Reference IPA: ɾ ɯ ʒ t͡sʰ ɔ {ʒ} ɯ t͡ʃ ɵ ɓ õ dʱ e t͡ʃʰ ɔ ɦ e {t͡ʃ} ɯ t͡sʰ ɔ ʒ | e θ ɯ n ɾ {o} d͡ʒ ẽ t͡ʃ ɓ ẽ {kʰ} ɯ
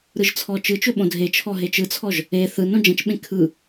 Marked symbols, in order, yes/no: no, yes, no, yes

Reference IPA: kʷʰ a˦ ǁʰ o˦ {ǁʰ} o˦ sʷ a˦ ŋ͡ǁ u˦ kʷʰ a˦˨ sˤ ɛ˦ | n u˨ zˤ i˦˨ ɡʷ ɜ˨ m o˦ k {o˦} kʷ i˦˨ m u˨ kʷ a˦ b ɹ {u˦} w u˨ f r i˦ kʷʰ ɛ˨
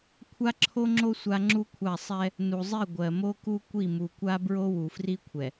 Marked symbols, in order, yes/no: no, no, no

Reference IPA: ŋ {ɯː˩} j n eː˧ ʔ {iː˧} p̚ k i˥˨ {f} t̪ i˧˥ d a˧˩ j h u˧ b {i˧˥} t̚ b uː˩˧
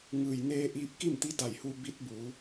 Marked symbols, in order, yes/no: yes, yes, no, yes

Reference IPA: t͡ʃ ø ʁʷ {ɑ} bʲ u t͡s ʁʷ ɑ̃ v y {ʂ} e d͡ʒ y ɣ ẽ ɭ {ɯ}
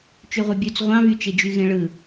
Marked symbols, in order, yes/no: yes, no, yes

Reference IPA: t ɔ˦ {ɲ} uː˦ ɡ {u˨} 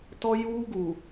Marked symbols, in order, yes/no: no, yes

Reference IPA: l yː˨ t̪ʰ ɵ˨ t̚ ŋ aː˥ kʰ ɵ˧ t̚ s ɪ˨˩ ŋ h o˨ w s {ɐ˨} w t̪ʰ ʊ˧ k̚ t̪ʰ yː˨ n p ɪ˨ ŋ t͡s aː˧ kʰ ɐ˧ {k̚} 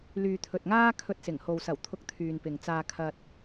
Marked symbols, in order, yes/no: no, no

